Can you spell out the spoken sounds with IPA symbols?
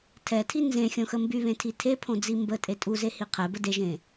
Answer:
tʰɛtʰi nzẽxʲõxə mbyβẽtʰi tʰepʰõd͡zi mbətʼe tʼuzehi qʰɛbə deʒẽ

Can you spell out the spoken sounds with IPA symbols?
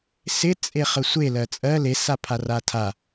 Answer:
sɪ t͡sʼeχəsʷe lɜt͡sʼɜ le sapʰaratʰa

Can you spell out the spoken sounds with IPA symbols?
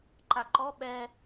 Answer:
ǃaǃɔ ɓɛ

